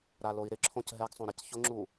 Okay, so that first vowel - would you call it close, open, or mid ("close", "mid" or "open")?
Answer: open